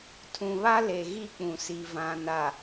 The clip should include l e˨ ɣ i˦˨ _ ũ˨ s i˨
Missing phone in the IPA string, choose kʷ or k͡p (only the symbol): k͡p